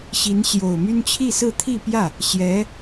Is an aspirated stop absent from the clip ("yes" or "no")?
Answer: no